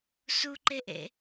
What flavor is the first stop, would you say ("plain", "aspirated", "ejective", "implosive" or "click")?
click